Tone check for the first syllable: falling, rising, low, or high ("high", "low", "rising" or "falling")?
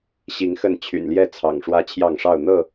rising